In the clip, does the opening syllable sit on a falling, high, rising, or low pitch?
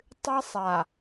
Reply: high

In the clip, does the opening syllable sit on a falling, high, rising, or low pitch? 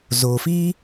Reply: low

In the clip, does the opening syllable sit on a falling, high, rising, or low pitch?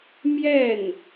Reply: falling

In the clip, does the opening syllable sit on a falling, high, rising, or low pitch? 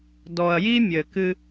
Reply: low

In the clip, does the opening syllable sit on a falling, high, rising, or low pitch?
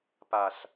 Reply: low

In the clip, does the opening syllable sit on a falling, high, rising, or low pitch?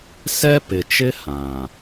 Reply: high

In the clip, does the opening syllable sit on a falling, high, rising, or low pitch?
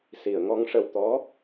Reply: low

